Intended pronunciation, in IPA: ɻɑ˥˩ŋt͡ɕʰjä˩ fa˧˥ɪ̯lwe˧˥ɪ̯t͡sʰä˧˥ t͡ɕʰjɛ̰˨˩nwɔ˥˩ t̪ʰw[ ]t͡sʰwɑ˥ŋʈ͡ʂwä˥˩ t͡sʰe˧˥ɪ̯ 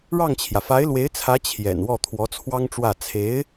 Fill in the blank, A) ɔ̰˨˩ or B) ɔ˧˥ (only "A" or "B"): B